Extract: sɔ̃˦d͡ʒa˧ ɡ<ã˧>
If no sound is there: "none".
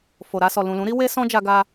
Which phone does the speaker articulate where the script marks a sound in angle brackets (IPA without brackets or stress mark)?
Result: a˧